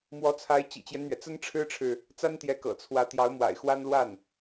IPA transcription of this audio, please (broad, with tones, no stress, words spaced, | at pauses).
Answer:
mwɔ˧˥t͡sʰa˧˥ɪ̯ t͡ɕḭ˨˩t͡ɕjɛ˦nn̪ɥɛ˩ t͡sə˥nʈ͡ʂʰɻ̩˥ʈ͡ʂʰɻ̩˨ | t͡sa˥nt̪jɛ˧˥ kɤ̰˨˩t͡sʰwä˧˥ t̪jɑ˧˥ʊ̯mwa̰˨˩ɪ̯xwa˥n lwa˥˩n